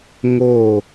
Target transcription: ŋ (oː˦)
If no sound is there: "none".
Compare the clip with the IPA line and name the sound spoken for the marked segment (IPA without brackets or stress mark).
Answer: oː˦˨